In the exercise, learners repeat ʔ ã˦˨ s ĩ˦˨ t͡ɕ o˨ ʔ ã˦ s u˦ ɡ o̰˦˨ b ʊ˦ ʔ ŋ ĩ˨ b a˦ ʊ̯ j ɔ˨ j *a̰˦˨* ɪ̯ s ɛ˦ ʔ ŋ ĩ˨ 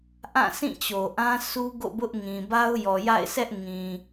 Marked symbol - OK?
yes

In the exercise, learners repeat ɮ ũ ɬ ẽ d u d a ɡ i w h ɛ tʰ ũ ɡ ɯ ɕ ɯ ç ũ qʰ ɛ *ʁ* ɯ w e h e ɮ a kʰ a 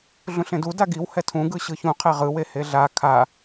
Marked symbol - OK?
yes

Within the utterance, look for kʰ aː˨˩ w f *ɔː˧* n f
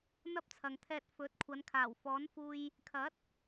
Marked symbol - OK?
no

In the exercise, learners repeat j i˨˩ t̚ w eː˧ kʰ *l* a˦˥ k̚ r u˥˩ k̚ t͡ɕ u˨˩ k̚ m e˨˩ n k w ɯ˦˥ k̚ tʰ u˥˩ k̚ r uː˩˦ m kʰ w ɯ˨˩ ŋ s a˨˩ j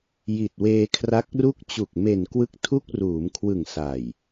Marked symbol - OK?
no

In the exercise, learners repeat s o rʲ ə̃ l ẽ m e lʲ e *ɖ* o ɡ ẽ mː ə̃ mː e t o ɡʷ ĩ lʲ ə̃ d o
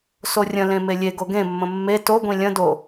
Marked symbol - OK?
no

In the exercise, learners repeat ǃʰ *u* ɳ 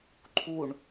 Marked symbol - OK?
yes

